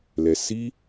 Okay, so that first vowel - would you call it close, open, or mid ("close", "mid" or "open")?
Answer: mid